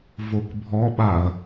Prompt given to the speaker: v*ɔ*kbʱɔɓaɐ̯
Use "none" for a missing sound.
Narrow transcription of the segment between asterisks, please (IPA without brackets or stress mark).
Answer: o